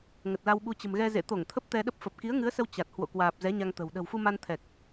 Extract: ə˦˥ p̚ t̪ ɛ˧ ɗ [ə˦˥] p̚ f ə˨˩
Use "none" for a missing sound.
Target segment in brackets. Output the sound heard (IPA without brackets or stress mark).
ə˦˥